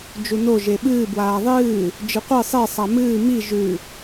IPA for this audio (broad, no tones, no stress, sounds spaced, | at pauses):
d͡ʒ u n o ʒ e ɓ ɨː b w aː ðˤ ɨː | d͡ʒ ɨ qʷ ɨ sˤ e sˤ a m ɨː m i ʒ ʉ